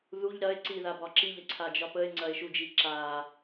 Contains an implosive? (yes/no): no